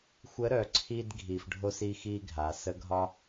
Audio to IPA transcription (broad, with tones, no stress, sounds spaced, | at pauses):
xʷ ə˧˥ ɾ œ˩˧ ǀʰ i˧ d ɡʱ i˩ f ɖʱ o˧ s i˧ x i˧ ɡʱ a˩˧ s ə˧˥ ɡʱ ɒ˥